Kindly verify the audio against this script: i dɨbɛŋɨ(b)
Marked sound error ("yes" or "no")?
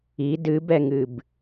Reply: no